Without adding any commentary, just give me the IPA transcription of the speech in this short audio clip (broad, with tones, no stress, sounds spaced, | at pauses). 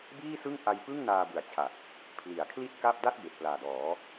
b iː˥˩ s ɯ˥˩ ŋ ʔ a˧ j p ɯ˥˩ ŋ n aː˧ b ɯ˨˩ a̯ t͡ɕʰ a˨˩ t̚ | pʰ l i˩˦ a̯ kʰ l i˥˩ t̚ k a˥˩ p̚ d a˥˩ t̚ b e˨˩ ʔ p l aː˨˩ d ɔː˩˦